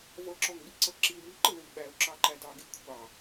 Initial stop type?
click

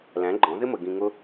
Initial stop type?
click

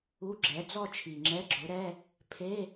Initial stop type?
click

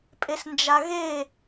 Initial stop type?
ejective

